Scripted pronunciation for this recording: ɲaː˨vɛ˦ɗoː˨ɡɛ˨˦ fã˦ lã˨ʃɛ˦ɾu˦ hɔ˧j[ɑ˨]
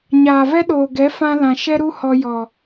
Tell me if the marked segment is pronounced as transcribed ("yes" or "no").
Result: no